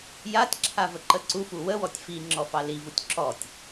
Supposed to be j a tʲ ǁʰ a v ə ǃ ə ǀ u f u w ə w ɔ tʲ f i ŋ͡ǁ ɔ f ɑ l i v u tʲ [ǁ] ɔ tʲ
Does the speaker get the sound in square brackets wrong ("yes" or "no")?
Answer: no